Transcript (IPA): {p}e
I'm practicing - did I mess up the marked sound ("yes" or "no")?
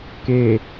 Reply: yes